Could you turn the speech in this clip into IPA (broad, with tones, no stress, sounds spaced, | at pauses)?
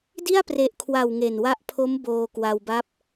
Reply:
d i˥˩ a̯ p r e˨˩ ʔ kʰ w a˨˩ w ŋ e˨˩ n w a˦˥ ʔ pʰ o˦˥ m b oː˧ k w a˧ w b a˥˩ p̚